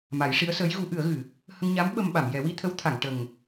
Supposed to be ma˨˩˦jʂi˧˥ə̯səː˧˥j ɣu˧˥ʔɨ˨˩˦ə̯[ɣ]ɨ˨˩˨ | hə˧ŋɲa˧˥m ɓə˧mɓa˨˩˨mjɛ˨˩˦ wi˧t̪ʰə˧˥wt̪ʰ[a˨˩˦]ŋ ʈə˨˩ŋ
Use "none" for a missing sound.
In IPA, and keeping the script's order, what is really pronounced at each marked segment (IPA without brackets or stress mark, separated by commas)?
ɣ, a˨˩˨